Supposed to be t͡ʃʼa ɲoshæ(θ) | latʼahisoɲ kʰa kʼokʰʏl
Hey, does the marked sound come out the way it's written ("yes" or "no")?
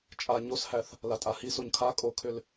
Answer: yes